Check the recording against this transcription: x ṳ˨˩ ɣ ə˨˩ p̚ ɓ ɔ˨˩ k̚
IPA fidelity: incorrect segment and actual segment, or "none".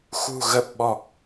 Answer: none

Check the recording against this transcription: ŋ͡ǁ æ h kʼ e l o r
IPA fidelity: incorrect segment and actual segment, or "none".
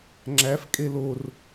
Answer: h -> f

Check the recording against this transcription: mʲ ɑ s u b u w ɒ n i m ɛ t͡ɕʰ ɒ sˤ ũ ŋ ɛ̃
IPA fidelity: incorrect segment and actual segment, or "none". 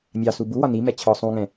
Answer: none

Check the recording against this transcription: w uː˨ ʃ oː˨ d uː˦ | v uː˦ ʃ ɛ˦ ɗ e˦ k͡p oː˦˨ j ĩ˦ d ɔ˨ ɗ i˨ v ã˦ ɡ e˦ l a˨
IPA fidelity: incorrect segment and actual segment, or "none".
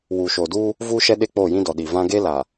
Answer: none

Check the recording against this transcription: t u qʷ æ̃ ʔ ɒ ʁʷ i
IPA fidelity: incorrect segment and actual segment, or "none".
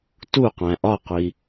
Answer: ʁʷ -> qʷ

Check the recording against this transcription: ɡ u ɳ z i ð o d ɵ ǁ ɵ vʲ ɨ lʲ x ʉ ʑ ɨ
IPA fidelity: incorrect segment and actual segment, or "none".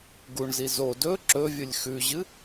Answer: ð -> z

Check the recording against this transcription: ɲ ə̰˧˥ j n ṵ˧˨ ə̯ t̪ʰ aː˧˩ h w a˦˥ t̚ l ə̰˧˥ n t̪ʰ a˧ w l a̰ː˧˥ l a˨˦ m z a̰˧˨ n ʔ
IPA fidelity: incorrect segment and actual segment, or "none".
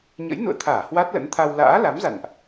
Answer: none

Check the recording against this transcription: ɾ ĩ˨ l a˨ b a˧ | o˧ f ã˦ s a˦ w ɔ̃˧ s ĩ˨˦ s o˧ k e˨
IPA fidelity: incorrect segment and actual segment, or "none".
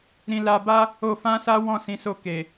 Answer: ɔ̃˧ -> ɔ̃˦˨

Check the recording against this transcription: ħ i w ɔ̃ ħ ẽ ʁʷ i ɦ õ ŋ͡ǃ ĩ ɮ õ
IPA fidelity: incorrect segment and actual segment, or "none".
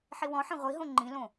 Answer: ɮ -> l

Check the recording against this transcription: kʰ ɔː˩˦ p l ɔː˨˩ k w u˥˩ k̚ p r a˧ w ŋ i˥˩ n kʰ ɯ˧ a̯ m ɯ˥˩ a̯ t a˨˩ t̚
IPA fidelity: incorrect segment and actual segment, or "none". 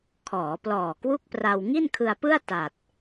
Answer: m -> p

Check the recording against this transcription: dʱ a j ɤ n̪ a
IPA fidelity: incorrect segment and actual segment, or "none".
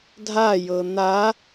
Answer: none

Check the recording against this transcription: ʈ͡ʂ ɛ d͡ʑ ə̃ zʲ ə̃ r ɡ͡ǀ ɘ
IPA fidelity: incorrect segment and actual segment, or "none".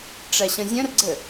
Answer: d͡ʑ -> ɕ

